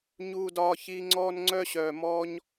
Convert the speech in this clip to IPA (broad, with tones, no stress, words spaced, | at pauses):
ɲuː˦dɒː˦çiː˦ ŋ͡ǀɔː˦nŋ͡ǀœː˦ ɕœː˨mɔː˦ɲ